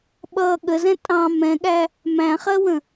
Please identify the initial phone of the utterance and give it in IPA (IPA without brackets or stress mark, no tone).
ɓ